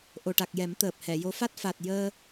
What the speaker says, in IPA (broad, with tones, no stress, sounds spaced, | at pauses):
ʔ o˨˩ ʈ a˨˩ k̚ j ɛ˨˩˦ m t̪ əː˨˩ p̚ h ɛ˨˩˨ j o˧˥ f a˦˥ t̚ f a˨˩ t̚ j əː˧